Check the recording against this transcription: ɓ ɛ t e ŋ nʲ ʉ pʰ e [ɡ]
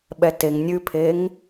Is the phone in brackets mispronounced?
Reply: yes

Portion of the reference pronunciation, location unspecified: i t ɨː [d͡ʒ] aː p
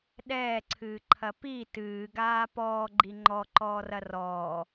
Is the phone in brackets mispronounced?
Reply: yes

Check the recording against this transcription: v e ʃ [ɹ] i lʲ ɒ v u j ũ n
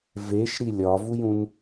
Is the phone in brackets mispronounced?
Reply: yes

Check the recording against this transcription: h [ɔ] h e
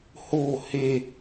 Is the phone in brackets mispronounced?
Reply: yes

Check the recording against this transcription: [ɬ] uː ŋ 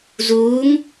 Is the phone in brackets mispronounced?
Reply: yes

